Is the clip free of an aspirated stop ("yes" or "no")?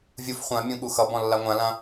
yes